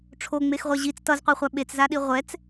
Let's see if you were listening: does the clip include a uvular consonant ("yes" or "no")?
yes